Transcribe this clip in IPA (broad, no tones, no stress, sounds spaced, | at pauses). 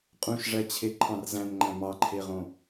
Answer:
qʼ ũ ʃ ʐ æ t͡ɕʰ e ǃʰ ɑ̃ r z æ̃ n ŋ͡ǃ æ̃ m ɑ ǃʰ e ʁ õ